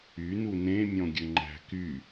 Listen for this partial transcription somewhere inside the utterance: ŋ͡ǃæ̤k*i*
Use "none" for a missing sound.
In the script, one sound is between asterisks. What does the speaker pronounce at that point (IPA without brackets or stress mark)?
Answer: y